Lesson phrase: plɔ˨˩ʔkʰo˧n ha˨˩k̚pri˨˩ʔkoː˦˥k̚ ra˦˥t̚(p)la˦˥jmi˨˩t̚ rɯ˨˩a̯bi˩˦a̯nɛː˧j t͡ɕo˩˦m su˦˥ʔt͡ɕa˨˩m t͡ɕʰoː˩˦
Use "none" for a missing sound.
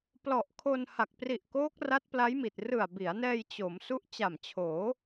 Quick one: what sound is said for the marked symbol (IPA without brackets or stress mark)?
p